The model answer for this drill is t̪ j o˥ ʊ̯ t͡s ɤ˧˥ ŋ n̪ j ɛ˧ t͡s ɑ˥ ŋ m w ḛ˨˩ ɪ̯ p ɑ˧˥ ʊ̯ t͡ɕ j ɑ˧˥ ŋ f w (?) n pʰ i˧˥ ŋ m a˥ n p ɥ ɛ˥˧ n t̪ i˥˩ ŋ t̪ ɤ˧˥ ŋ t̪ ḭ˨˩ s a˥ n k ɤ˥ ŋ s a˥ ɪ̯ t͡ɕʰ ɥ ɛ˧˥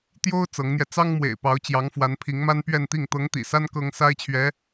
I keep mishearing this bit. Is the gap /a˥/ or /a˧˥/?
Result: a˧˥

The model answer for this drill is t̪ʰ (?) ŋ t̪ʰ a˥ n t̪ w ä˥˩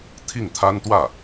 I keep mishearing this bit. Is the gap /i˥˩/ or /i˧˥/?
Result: i˥˩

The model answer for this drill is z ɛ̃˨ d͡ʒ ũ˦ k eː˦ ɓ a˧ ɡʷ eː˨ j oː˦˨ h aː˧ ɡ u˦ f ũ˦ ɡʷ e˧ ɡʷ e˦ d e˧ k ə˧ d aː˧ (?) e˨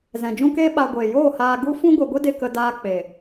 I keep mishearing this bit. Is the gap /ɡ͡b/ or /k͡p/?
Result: k͡p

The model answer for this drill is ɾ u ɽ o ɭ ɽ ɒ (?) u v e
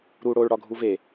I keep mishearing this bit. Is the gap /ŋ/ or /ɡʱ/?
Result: ɡʱ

